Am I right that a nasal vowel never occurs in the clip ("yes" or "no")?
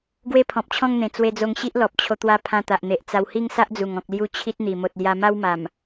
no